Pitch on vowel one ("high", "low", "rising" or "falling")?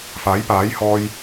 rising